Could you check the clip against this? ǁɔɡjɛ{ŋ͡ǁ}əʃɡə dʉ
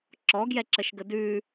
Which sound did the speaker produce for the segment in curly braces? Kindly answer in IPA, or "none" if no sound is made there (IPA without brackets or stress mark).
ǁ